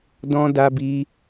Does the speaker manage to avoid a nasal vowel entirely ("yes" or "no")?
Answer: no